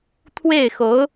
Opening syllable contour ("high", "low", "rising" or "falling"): falling